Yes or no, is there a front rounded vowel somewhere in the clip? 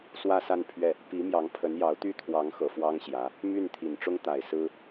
yes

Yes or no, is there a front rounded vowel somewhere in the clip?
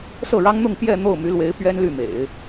yes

